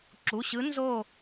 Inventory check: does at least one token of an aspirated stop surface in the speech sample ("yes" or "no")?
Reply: no